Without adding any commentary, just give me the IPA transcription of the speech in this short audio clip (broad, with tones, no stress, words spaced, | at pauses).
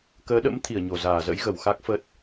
kəː˨˦ɗə̰˧˥mt̪ʰi˧˩ə̯ ɲo˧˩zaː˧˩zə̰˧˥jɣə˧˩w xa˦˥k̚fə˦˥t̚